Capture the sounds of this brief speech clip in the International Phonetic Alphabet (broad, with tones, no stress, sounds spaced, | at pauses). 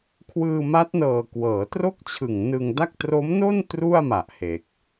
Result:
kʰ w ɯː˧ m a˦˥ t̚ n ɤː˨˩ k w ɤː˩˦ t r o˥˩ k̚ t͡ɕʰ ɯ˨˩ ŋ n ɯ˧ ŋ d a˥˩ k̚ t r o˦˥ m n o˥˩ n t r u˥˩ a̯ m a˨˩ ʔ h e˨˩ k̚